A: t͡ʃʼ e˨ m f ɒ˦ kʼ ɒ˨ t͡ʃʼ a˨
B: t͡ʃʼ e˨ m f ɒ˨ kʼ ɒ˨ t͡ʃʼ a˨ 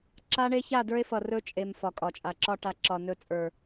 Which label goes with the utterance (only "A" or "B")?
B